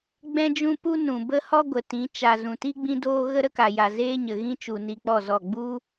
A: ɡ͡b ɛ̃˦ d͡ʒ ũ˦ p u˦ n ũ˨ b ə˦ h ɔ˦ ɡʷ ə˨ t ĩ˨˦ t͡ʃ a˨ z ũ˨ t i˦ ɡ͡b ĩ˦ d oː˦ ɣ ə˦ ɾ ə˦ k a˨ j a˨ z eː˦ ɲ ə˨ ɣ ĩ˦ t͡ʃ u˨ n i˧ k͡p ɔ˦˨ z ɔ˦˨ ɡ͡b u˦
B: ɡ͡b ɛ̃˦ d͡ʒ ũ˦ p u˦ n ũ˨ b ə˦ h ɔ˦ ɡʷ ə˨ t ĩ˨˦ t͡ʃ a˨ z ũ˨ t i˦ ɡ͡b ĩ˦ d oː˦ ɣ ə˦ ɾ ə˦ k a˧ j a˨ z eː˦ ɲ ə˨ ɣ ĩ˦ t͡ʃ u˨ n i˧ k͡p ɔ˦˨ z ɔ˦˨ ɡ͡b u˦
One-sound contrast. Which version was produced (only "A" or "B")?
A